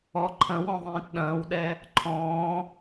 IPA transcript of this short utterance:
ɔ ǃʰ ɐ̃ w ɔ̃ ðˤ ĩː t ɗ ɐ̃ː w ɗ ɛ | ǃʰ ɔ̃ː

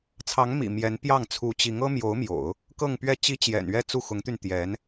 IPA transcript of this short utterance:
t͡sʰ ɑ˧˥ ŋ m ḭ˨˩ m j ɛ˧˥ n p j ɑ˥˩ ŋ t͡sʰ u˧˥ t͡ɕ i˧˥ ŋ ɤ˥ m j o˧˥ ʊ̯ m j o̰˨˩˦ ʊ̯ | k ɤ˥˧ ŋ p ɥ ɛ˥˩ t͡ɕ i˥ t͡ɕ j ɛ̰˨˩ n ɥ ɛ˥˧ t͡s u˥˩ x ʊ˧˥ ŋ t̪ y˧ n t̪ j ɛ˧˥ n

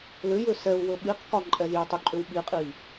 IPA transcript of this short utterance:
l ʏ j ʏ s ɛ u̯ w ɵ ɓ i q k ɒ ǃʼ ɛ z j ɵ tˤ ʏ ǃʼ ʏ w ɓ i qʼ i

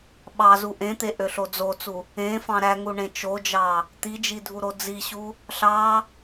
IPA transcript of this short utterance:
ɓ ɑ z u ʔ ẽ t̪ e ʔ ø ɬ o d͡z o t͡s u | ẽ f ɑ̃ ɾ æ ŋ u ɳ ẽ t͡ʃ o d͡ʒ ɑ | t̪ i d͡ʒ i dʱ u ɾ o d͡z i ɕ u | ɬ ɑ

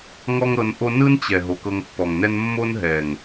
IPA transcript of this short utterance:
ŋ ɔ˦ ŋ ɾ ɤ˧ n ʔ o˦ n ɯ˦ n t͡ɕ ɛ˨ ɦ o˨ k ɤ˧ ŋ pː ɔ˨ ŋ n ɛ˦ n mː o˦ n ɦ ɛ˨ ŋ

